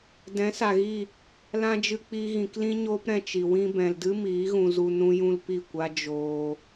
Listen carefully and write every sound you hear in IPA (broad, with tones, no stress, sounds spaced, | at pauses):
d ɛ̃˨˦ s a˨ ɣ i˦˨ | l ã˦ d͡ʒ ɨ˧ k͡p iː˧ ɣ ĩ˨ k l ĩ˦ ɲ oː˦ p ɾ ɛ̃˧ t͡ʃ i˨ w ĩ˧ b ɛ̃˨ l d ɨ˦ m iː˨˦ ɣ ũ˧ z u˧ n ũ˦ j ũ˦ l p i˦˨ kʷ a˦ d͡ʒ oː˧